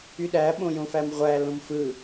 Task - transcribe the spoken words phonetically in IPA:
y ɗ æ ɓ õ j õ f æ m ʁʷ æ l õ m f ɯ

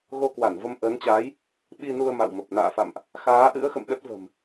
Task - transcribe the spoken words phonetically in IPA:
ɣ o˧ k w a˧˩ n v ə˧ m ʔ əː˨˦ n t͡ɕ aː˨˦ j | ɓ i˧ n u˧ ə̯ m a̰˧˨ w m ə˨˩ p̚ n a̰ː˧˨ f a̰˧˨ m ʔ | x aː˨˦ ʔ ɨ̰˧˥ ə̯ x ə̰˧˨ m ɗ ə˦˥ t̚ v ə̤˨˩ m

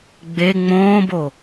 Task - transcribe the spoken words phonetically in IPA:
ɡ͡b e ŋ͡m õː b o

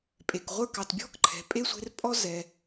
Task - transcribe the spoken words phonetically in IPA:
pʼ e˨ k ʁʷ ə˞˥ k ɑ˨ t bʲ ɔ̤˥ k ǃʰ ɛ̤˨ pʼ e˥ sʷ e̤˦ r pʼ ɔ˥ z ɛ˨

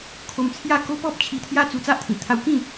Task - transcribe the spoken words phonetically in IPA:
kʰ o˧ m t͡sʰ j a˥˧ k o˦ p ɔ˦ p̚ t͡ɕʰ i˧ t̪ʰ j a˦ t͡s u˧ t͡s a˦ ʔ t̪ʰ ĩ˨˩ t̪ʰ a˧ w k ĩ˥˧

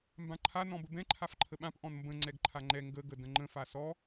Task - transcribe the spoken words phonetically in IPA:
m b ã ǃʰ a n ɔ̃ b ə b ɛ̃ ǃʰ a f ǃʰ ə ɓ ã p ʔ ɔ̃ n m b ə̃ ŋ͡ǀ ɛ ɡ ǃʰ a ŋ͡ǃ ɛ ŋ ɡ ə ɡ ə d ə̃ ŋ͡ǃ ə̃ f a s ɔ

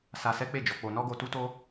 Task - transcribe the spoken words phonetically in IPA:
s a˧ s ɛ˦ k͡p e˦˨ d͡ʒ ɔ˧ k͡p o˧ n ɔ˦ ɡ o˧ t u˦ t o˦

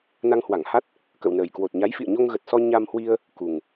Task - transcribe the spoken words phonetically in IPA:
n a˧ ŋ h w a˧˩ ŋ h a˦˥ t̚ | k ə̰˧˨ w n əː˨˩ j k w o˨˩ t̚ ɲ a˨˦ j f ḭ˧˨ ə̯ ɲ o˧ ŋ ɣ ə˨˩ t̚ s ɔ˧ ɲ a˧ m h w i˧ ə̯ | k u˨˩ ŋ

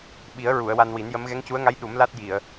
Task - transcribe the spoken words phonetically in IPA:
ɓ i˨˩˦ ə̯ ɹ u˨˩˨ ə̯ w a˧ n w i˨˩˦ n j ə˧˥ m ɣ ɛ˧˥ ŋ c u˧˥ ə̯ ŋ a˧˥ j ɗ u˨˩˦ m l a˦˥ t̚ j i˨˩˨ ə̯

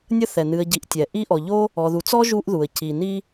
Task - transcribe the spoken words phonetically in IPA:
nʲ ə˦ θ ɛ˩ n ɨ˨ ə̯ ɟ i˨ ʔ tʲ ɛ˩ ʔ i˦ ʔ ɔ˨ ʎ o˥ | ɔ˨ ð u˨ t͡s ɔ˥ ʒ u˦ ʔ ð u˩ ə̯ c i˩ n i˦

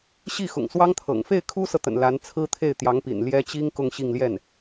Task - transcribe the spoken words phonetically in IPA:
ɕ i˥˩ x ʊ̰˨˩ ŋ s w ɑ˥ ŋ t̪ʰ ɤ̰˨˩ ŋ f e˥˩ ɪ̯ kʰ u˥ s ɤ˨ t̪ ə̰˨˩ n l a˧˥ n t͡sʰ ɹ̩˥ t̪ʰ e˥˩ ɪ̯ t̪ j ɑ˧˥ ŋ p ḭ˨˩ n l j ɛ˥ t͡ɕ i˥ ŋ k ʊ˥˧ ŋ ɕ i˥˧ ŋ l j ɛ˥˩ n

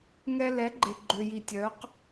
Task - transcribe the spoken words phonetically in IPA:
ŋ ɛ˧ l ɛ˨˦ ɡ͡ǃ e˨ ɡ͡ǃ ø˨ j i˨ tʲ œ˨˦ q

